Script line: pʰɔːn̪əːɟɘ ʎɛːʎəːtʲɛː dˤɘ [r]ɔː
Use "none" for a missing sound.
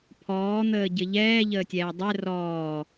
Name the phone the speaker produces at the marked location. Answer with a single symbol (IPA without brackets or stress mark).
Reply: r